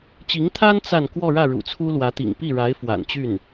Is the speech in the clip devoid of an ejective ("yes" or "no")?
yes